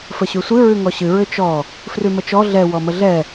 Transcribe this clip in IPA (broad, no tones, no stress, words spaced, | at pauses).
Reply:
fəɕʉsʷɨ ɹʉŋɔɕɨ ɹʏt͡ʃɔ | frʉmət͡ʃɔ ɮɛ wɔməɮɛ